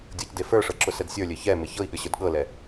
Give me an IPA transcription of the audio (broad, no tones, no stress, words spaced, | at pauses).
dʲɤcdefə˞ʂɤ ǁʊsɛdsʲə˞lʲɘ çɛ meçɤi̯ɠɘ ɕə˞dɠɤlɛ